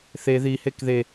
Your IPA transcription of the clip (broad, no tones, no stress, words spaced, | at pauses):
θe ði hekðe